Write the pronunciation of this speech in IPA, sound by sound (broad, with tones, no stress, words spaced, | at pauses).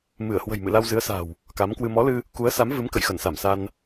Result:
mɨ˧˩ə̯hwə̤˨˩jmɨ̰˧˨ la˧wzɨ˨˦ə̯sa̤˨˩w | ka˨˦mkwɨ˧ mɔ˨˦lɨ˧ | ku˨˦ə̯sa˨˦mvɨ˨˦m kə̰˧˨jxə˧˩nsa˧˩msa˧n